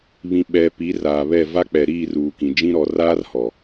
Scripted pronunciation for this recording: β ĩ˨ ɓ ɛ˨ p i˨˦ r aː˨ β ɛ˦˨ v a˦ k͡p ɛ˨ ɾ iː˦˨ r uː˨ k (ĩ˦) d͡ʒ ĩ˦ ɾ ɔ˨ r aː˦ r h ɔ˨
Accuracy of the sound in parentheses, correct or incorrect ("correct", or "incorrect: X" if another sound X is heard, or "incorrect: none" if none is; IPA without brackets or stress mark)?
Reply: incorrect: ĩ˨